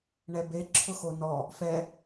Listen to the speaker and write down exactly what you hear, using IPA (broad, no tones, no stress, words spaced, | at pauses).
ɳɛbe ǁʰʊxonɔ | fɛ